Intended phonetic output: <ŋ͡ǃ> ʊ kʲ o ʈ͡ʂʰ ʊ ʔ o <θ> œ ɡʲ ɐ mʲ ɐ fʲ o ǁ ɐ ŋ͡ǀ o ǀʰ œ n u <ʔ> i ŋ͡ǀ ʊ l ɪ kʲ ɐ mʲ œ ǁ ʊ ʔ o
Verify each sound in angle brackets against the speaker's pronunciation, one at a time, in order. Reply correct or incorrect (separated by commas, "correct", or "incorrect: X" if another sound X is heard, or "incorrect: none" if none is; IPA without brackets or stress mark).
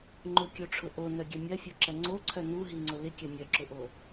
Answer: correct, incorrect: n, incorrect: ɦ